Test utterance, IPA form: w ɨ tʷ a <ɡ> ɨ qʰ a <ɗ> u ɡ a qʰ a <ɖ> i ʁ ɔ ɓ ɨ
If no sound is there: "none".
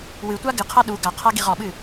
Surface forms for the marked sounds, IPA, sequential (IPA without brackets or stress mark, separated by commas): ɡ, ɗ, ɡ